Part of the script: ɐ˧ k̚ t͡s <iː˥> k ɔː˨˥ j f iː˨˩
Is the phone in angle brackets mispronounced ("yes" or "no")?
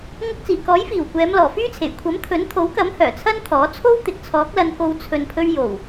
yes